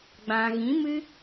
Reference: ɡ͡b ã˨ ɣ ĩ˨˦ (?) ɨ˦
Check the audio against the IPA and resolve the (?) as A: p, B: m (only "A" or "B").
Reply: B